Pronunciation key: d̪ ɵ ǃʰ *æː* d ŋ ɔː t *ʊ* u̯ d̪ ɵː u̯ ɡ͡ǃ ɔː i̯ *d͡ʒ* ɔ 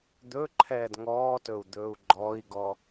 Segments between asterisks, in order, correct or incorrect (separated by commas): incorrect, incorrect, incorrect